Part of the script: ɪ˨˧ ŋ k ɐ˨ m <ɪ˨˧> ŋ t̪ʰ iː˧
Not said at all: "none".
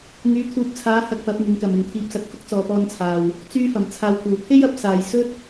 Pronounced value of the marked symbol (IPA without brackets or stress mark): ɪ˨